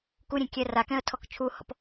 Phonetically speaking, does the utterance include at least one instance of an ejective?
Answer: no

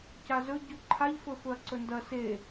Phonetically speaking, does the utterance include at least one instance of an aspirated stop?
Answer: yes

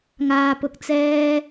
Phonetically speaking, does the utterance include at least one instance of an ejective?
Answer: no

